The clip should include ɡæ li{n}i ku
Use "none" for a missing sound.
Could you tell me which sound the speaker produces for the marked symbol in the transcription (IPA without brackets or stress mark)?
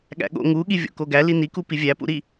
n